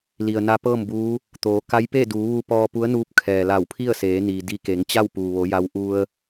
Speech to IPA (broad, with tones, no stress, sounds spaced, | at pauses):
l i˩ ə̯ n a˧˥ p ɤː˥˨ m b uː˧˥ | t̪ oː˩˧ k a˧˥ j p e˥˨ d uː˩˧ ʋ u˧ p ɔː˧ p u˧˥ ə̯ n uː˧ p̚ kʰ ɛː˩ l a˧˩ w pʰ i˥˨ ə̯ s eː˩˧ n iː˩ d i˧ k e˩˧ ŋ t͡ɕ a˥˨ w p uː˩ ʋ o˩˧ j a˧ w ʔ u˧ ə̯